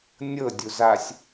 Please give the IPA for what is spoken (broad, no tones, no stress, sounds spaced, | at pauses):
nʲ ɤ dʲ u z a sʲ